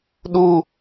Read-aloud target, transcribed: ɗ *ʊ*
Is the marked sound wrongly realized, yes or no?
yes